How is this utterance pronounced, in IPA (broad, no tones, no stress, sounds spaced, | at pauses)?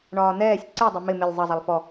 ɳ ɒː n̪ ɛː sʲ ǀ ɛ dˤ ɛ m ɪ m ɪ lʲ zˤ ʌ zˤ ɑ lˠ f ɔ